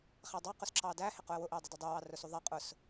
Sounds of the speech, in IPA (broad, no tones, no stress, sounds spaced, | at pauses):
χ æ dˤ ɑ q ʊ s ǁʰ ɑ d æ h ɪ q ʊ ə̯ w ʊ ʔ ɪ ə̯ dˤ ʊ d ɪ dˤ u w ɑ r ʊ s u ðˤ ɛ qʼ ʊ s